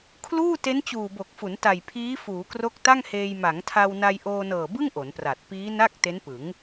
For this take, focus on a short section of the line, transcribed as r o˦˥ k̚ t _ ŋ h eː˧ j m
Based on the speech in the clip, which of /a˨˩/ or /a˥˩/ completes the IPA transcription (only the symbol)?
a˥˩